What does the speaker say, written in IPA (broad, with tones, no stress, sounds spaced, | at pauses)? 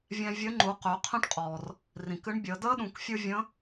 vʲ ɛ̃˧ vʲ ə˧˥ ŋ͡ǃ u˩˧ q ø˩˧ qʰ ə̃˥ ʈ qʼ ɔː˩ r | r ĩ˩ k ɨ˧˥ ɳ bʲ əː˩˧ d̪ əː˥ ɗ ũ˩˧ k fʲ ɯ˥ vʲ ə̃˧˥